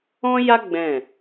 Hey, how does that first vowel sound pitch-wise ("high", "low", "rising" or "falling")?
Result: high